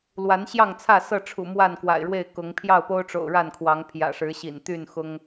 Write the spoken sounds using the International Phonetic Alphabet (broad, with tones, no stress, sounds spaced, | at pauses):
l w a˨˦ n ɕ j ɑ˥˨ ŋ t͡sʰ ä˥˨ s ɤ˥˨ ʈ͡ʂʰ ṵ˨˩ m w a˥˨ n k w a̰˨˩ ɪ̯ ɻ w e˥˨ ɪ̯ k ʊ˨˦ ŋ pʰ j ɑ˥˨ ʊ̯ p o˦ ʊ̯ ʈ͡ʂ o̰˨˩ ʊ̯ ɻ a˥˨ n kʰ w ɑ˨˦ ŋ pʰ j ä̰˨˩ ʂ ɻ̩˨˦ ɕ ḭ˨˩ n t̪ y˥˨ n x ʊ˦ ŋ